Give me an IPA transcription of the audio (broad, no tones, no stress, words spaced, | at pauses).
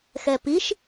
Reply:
xɛpiʃ